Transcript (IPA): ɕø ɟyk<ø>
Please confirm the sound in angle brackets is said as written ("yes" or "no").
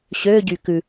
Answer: no